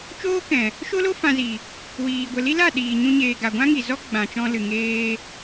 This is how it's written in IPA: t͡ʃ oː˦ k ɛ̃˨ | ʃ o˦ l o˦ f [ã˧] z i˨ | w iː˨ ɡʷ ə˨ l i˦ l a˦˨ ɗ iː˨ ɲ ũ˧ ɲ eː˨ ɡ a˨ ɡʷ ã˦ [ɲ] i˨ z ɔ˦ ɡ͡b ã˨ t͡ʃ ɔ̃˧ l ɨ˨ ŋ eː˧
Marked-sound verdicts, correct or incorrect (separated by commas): correct, incorrect